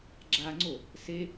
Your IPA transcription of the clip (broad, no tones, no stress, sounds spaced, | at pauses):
ɡ͡ǁ a ŋ͡ǀ o | s e